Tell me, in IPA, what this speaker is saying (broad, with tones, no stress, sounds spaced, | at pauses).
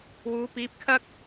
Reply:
w uː˨˧ p iː˨˥ p̚ kʰ ɐ˥ k̚